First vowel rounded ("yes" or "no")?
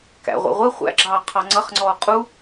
no